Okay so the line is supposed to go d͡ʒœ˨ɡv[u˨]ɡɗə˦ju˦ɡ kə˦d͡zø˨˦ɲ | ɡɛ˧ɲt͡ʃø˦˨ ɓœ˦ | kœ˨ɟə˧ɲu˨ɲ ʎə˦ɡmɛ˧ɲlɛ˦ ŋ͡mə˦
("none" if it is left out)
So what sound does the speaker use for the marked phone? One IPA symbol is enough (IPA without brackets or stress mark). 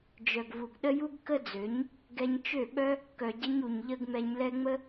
u˨